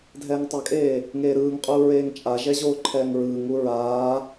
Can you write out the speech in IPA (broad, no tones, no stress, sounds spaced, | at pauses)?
dʱ ɛː ŋ tˤ ɛ kʼ eː | ŋ eː ɾ ɯː ŋ qʼ uː ɹ eː ŋ t͡ʃʼ a ʒ ɛ ʑ oː ǃʰ ɛː ŋ ɹ ɯː ŋ u ɹ aː